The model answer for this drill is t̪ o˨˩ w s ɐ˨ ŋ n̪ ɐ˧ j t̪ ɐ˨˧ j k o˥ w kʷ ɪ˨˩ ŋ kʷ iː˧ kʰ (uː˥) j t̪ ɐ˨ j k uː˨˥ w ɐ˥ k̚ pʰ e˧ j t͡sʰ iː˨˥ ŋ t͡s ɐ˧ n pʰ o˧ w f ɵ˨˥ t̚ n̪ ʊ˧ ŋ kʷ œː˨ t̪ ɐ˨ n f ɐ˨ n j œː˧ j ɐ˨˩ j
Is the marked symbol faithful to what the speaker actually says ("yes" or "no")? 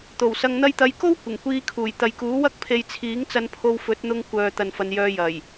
no